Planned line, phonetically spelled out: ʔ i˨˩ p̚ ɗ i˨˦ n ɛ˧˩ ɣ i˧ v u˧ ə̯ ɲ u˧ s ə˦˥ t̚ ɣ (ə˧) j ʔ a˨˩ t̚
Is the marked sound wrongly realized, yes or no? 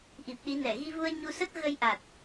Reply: no